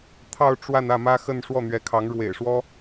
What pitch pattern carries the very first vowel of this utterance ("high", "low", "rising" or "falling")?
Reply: falling